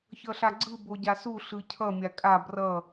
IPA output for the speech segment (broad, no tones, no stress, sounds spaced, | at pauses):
ç ʌ ɬ a ɡ͡ǀ ɯ b o ɟ a s u ɬ ɯ cʰ ʌ mʲ a kʼ a b r ʌ